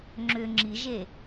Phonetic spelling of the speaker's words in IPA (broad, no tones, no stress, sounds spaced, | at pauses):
ŋ͡ǁ ʏ ŋ͡ǁ i ʒ e